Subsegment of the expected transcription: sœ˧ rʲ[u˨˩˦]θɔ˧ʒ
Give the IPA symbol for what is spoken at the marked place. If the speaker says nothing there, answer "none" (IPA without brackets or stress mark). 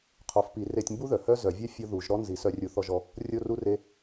u˨˩˦